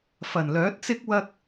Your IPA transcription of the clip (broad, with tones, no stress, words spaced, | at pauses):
fɐ˨˩nlœː˨˥t̚t͡sɪ˥k̚ wɐ˧k̚